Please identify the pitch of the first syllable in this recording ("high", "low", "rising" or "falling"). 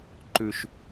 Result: high